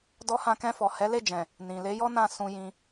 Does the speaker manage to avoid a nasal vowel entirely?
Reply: no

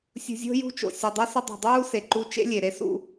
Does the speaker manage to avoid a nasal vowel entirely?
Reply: yes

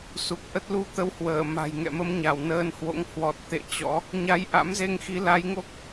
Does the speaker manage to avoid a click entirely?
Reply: yes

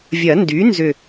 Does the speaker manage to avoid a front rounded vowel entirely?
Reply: no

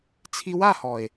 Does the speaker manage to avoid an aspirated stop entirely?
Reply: no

